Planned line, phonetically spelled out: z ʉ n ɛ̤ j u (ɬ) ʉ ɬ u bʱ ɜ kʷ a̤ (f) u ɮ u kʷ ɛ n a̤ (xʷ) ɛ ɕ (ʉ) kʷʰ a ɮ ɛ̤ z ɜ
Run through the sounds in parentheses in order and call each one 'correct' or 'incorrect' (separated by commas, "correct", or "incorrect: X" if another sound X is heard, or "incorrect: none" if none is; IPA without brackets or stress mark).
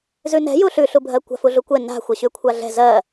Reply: correct, correct, correct, correct